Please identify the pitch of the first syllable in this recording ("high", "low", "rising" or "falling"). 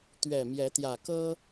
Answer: low